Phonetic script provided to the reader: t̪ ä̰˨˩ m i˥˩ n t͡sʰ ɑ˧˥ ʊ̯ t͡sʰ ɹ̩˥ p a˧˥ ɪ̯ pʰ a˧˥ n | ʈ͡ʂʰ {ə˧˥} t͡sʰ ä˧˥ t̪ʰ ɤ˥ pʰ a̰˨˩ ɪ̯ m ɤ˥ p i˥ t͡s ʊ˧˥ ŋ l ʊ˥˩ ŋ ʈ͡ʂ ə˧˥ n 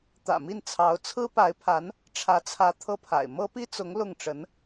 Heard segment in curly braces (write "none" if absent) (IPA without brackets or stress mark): ä˧˥